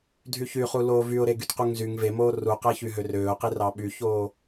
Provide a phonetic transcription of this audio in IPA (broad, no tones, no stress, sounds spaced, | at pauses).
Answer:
dʱ y ç y χ u l oː v y ʊ̯ ɾ e ɡ y t q u ŋ z y ŋ v e m oː r u q æ ç y ɦ ø r øː ʊ̯ q i r ɑ ɓ y ç oː